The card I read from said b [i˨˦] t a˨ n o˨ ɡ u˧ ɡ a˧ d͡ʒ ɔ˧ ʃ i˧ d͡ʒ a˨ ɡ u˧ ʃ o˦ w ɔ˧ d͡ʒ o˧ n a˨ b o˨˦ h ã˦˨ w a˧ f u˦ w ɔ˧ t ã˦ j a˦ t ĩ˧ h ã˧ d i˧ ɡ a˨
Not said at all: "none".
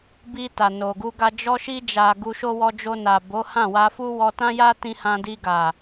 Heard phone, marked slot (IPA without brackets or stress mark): i˧